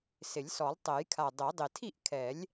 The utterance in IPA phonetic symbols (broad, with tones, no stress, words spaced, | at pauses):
sɪ˨˩˦lʲsɔ˨˩˦lˠtˤɛ˨˩˦jkʰa˨˩ dˤɛ˨˩˦dˤɪ˨˩ tʰi˥˩ʔkʰɛ˨˩˦lʲ